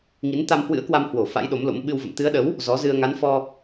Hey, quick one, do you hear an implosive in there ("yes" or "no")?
yes